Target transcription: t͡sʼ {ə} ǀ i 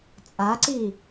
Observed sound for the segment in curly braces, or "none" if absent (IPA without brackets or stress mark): a